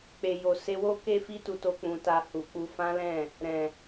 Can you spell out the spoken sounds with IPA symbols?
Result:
k͡pe˨jo˨ se˧wo˦ ke˦fi˦tu˧to˧ k͡pũ˧ta˧ hu˨k͡pu˧fã˦lɛ̃˦˨ | ɾɛ̃˨

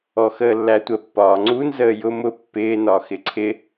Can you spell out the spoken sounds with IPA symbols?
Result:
ɔxəːlːætʷə pːɒːŋ͡ǀun zəːjʊ mʊ pːɪː nɒxɪǀʰɪ

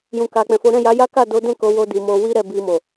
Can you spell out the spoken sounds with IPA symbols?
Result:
jũ˨ka˨k͡pɛ̃˨fo˨˦ ɾɛ̃˦˨ja˨˦ja˦ ka˦˨do˨˦dɛ̃˦˨ ko˨˦wo˧ di˨mo˧ wi˦ɾɛ˦˨ bi˧mo˨

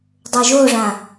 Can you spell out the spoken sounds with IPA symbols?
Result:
dˤoʒoʐã

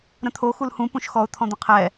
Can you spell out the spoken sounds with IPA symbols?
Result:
ɾə̃t̪ʰo xulhũ pũʃxɔʊ̯ t̪ʰɔ̃d̪ə̃qʰɛ

